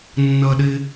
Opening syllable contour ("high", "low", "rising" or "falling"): high